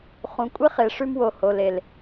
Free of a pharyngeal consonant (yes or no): yes